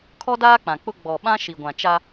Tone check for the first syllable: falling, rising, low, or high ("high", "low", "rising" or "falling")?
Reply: high